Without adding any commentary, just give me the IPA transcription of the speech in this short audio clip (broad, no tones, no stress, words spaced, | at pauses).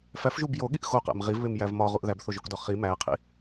fæfʒub joɠiʔ xoqæ̰m ʁivβemjæv mɒʁuʔ ðæbθoʒokdɒ χi mæqʰḭ